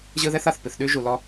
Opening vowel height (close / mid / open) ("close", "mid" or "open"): close